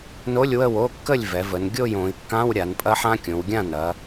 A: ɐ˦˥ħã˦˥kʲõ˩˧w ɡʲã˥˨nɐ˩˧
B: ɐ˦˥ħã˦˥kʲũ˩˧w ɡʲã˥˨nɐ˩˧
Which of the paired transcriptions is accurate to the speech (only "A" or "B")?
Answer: A